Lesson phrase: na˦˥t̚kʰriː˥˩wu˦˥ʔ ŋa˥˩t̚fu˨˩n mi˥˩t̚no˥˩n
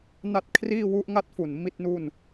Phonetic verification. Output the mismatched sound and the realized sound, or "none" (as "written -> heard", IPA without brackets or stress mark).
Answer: o˥˩ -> u˥˩